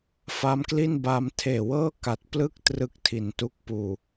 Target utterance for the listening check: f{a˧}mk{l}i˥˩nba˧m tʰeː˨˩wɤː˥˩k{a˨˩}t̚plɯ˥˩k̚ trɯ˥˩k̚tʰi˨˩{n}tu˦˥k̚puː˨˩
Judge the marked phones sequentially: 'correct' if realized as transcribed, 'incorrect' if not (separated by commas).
incorrect, correct, correct, correct